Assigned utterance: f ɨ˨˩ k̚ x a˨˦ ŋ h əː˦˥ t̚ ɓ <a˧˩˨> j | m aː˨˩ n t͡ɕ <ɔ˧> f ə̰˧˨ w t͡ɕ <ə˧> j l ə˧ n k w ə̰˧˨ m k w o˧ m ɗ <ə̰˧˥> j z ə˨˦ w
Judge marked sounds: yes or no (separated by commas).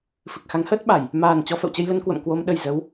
yes, yes, yes, no